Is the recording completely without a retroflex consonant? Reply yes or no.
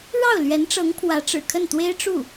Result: no